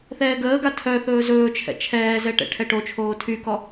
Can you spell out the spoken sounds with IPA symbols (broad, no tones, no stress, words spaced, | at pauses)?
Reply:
θɛːɡəːɡa tʰœθɵː zɵːt͡ʃʰɛ̰ t͡ʃʰɛːzɛ ʈɛ̰ʈʰɛʈot͡ʃʰoː tʰykɔ